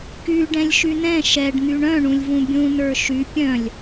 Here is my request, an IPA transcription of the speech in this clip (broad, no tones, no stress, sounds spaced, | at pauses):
k y ɖ ɛ̃ lʲ ʃ y n ɛ̃ ʃ ɛ ɖ n̪ y ɳ œ̃ ɳ ũ lʲ v ũ bʲ ũ n ə˞ ʃ y pʲ œ̃ lʲ